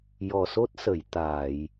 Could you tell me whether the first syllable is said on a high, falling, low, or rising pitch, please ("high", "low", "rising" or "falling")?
low